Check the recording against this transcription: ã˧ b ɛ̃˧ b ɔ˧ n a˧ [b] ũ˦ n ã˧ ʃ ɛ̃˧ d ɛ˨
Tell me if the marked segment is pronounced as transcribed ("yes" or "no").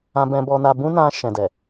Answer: yes